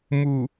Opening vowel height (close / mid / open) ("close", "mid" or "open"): close